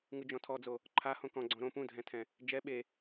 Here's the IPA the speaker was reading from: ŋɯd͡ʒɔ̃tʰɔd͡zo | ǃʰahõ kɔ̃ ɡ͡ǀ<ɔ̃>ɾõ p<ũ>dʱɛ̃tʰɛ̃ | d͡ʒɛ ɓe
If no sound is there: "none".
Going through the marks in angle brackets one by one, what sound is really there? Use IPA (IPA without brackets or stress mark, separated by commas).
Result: ɔ̃, ũ